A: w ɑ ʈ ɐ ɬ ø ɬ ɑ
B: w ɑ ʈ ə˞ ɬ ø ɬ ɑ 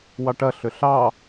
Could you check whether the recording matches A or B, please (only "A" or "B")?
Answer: A